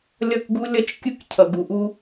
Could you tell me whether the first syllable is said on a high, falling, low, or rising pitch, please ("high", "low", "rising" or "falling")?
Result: falling